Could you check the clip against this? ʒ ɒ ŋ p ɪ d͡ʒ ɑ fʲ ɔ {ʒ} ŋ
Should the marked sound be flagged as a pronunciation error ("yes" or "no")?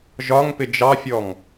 yes